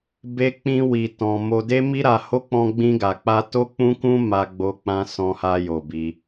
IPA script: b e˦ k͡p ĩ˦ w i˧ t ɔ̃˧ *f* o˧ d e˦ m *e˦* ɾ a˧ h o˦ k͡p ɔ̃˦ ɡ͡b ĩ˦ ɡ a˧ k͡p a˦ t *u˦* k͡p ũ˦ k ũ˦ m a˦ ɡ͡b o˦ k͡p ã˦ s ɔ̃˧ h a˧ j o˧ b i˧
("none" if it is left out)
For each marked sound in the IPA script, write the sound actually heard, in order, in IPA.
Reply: m, i˦, o˦

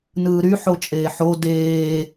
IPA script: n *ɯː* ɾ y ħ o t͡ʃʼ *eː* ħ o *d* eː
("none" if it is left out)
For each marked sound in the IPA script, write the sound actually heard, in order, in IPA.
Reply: ɯː, eː, d

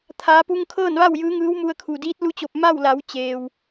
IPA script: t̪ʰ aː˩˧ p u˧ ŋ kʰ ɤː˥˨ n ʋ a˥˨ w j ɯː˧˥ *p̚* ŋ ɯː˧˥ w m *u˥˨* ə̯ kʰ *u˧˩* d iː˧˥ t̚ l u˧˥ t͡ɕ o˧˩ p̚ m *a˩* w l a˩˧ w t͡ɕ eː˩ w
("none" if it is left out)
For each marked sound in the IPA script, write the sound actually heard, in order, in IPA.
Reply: none, u˧, u˩, a˥˨

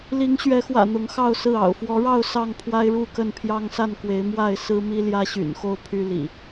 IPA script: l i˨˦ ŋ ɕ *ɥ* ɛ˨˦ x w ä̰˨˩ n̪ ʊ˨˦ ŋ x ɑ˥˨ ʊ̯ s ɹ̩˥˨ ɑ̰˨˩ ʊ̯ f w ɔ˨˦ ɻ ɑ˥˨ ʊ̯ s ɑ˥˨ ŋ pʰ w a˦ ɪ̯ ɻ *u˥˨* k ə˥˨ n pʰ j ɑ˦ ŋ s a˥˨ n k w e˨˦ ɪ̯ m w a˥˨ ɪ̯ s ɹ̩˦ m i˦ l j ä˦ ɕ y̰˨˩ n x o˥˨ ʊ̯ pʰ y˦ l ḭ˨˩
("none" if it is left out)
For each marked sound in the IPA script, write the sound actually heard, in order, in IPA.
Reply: ɥ, u˥˨

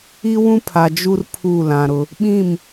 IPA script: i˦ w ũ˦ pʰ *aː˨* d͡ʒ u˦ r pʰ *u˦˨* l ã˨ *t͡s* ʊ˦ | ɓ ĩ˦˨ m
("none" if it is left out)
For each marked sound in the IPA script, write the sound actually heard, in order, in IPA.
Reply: a˨, u˦˨, ɾ

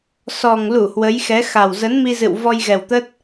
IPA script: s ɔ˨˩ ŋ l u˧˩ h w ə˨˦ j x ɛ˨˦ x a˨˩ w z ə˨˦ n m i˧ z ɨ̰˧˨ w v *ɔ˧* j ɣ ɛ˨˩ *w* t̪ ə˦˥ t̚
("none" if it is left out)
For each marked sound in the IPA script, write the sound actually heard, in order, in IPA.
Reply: ɔ˧, w

